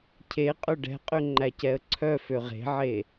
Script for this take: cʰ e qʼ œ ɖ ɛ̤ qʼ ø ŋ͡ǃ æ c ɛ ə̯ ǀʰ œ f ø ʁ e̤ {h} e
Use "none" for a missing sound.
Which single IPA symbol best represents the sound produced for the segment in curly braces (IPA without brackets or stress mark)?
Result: ʕ